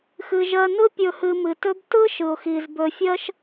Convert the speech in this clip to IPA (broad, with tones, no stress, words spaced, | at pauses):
xɨ˩ʒɜ˨nɯ˦ pʲɵ˨hɨ˨mɨ˩tɵ˦b tɯ˥ʃɯ˩ʊ̯ xi˨z bɵ˨fʲɜ˦ʃ